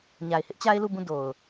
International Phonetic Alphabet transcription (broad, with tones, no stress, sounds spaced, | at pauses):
ɲ a˨ ɪ̯ h ɪ˦ ʔ t͡ɕ a˦ ɪ̯ l u˦˨ b ũ˦˨ d o˨ ʊ̯